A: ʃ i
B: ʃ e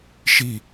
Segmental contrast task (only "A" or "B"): A